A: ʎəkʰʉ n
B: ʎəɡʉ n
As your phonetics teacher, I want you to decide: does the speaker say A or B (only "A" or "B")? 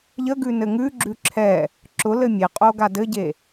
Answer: B